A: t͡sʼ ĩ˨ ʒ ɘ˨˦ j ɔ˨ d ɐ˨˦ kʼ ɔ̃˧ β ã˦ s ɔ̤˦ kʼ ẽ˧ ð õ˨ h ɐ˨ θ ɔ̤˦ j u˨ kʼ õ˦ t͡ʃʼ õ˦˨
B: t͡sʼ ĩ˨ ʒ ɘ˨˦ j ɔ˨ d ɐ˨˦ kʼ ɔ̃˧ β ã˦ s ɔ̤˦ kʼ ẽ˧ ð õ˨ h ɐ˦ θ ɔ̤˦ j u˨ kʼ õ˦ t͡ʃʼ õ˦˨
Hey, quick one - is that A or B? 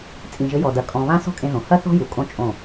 B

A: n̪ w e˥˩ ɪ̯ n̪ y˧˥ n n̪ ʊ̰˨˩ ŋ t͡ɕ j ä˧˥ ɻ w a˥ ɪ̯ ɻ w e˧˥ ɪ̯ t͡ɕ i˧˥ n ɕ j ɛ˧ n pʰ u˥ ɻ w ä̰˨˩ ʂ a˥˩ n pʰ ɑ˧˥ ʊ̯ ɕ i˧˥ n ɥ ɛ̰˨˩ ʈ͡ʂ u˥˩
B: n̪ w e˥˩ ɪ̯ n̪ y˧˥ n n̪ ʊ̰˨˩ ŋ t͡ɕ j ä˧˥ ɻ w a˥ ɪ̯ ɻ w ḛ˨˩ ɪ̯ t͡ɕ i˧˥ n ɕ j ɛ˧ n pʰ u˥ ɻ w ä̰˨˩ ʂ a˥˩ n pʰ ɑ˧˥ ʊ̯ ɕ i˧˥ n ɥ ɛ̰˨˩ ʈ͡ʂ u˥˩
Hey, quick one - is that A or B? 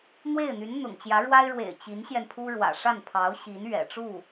B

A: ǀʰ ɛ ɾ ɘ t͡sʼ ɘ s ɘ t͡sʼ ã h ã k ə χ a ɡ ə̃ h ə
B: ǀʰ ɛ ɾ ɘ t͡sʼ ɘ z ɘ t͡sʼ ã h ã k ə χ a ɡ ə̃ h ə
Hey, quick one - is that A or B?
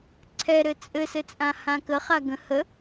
A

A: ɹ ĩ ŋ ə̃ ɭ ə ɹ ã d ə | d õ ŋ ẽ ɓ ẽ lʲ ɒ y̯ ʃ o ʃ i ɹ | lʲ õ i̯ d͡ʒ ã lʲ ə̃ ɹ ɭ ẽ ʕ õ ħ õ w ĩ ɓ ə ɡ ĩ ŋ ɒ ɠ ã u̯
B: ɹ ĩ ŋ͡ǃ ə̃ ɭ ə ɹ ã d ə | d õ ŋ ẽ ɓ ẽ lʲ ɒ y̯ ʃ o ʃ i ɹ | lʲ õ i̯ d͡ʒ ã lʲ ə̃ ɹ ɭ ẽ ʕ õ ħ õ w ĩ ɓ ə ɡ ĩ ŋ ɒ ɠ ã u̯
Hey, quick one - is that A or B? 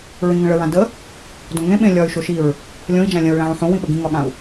A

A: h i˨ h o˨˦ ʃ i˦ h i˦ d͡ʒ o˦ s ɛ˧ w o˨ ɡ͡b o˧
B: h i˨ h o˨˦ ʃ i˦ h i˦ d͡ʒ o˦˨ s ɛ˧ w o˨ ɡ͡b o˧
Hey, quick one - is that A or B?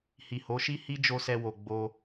A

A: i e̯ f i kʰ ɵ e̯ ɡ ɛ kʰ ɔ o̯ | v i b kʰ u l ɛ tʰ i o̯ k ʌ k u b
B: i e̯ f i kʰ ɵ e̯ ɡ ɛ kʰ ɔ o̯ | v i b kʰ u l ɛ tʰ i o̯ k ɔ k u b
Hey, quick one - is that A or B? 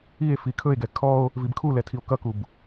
A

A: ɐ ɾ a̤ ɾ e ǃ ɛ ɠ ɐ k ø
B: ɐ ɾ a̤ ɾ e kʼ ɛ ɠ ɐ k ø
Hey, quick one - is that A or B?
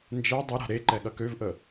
A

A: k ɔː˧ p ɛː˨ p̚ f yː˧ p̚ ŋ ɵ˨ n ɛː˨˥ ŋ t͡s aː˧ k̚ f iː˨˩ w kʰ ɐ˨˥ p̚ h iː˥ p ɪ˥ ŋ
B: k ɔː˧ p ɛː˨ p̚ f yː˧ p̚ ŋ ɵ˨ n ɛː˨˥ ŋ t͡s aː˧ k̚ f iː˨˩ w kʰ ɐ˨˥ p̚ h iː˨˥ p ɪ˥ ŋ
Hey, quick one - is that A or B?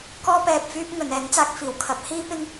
A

